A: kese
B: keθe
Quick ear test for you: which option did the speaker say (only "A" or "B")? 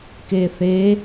B